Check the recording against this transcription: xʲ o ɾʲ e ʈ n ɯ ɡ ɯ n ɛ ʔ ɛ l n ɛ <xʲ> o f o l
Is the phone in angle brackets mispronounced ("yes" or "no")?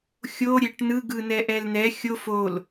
no